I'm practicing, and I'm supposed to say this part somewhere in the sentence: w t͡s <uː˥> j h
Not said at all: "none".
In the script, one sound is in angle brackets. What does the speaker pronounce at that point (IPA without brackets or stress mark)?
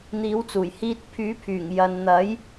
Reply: uː˨˩